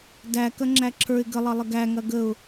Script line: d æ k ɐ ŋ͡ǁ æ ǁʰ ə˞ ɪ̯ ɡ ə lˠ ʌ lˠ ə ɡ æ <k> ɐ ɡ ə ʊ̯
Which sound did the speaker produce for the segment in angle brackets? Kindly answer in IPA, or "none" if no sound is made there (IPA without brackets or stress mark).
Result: ŋ